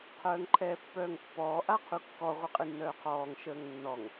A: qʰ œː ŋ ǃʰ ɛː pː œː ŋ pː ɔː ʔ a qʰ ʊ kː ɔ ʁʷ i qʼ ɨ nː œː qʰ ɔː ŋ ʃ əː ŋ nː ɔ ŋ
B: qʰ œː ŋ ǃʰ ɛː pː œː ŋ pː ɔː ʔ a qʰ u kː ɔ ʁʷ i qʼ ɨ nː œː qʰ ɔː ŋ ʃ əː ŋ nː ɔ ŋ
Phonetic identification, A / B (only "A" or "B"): B